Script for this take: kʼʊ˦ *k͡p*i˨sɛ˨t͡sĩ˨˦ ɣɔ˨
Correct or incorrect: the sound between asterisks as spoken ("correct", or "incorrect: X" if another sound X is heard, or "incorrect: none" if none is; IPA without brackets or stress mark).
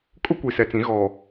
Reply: incorrect: kʷ